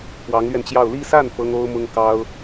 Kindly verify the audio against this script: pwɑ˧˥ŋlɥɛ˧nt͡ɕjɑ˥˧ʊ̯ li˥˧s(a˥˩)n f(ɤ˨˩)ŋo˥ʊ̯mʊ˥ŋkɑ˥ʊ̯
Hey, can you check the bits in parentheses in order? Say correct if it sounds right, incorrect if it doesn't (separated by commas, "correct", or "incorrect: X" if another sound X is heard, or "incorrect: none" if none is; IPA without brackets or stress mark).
correct, incorrect: ɤ˥